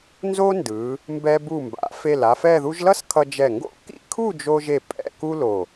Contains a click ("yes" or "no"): no